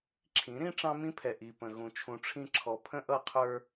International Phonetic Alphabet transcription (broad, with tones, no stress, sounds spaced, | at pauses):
ǁʰ ĩ˨˦ ɾ ĩ˦ ʈ͡ʂ ɑ̃˦ m ĩ˦ pʰ ɛ˨ ʔ i˨ p ə̃˨ ɣ ũ˨ t͡ʃʰ ũ˨ ʈ͡ʂʰ ĩ˦˨ ǁʰ ɔ˨ pʰ ə̃˦ ʔ ʌ˦˨ qʰ ə˞˦